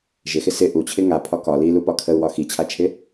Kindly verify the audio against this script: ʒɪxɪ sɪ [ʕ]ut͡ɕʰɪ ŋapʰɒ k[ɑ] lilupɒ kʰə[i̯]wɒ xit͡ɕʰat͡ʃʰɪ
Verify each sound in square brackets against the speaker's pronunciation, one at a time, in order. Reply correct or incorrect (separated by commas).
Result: incorrect, incorrect, incorrect